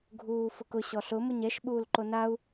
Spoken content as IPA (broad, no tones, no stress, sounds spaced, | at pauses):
ɡʱ uː f ʊ k ʊ ɕ ɔ ɬ ʊ m ʊ ɲ ɛ ʃ ɓ uː l ǃ o n a u̯